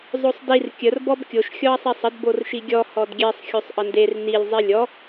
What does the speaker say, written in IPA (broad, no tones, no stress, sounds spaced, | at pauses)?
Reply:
zˤ o sˤ d i r kʲ ə r b ɔ b kʲ o ʃ xʲ ɔ ɐ̯ sˤ i sˤ ə d b o r ʃ i ɡʲ ɔ h ɔ d ɡʲ e sˤ xʲ o sˤ ʔ ə n d e r n i lʲ zˤ i lʲ ɔ